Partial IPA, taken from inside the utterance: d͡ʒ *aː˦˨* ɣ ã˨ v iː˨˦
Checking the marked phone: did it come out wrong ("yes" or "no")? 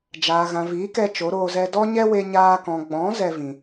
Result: yes